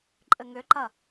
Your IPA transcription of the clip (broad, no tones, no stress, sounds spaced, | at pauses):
ǃʼ ɘ ŋ ʏ ǃ ɐ